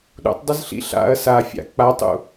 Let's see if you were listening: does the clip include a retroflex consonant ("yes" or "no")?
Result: no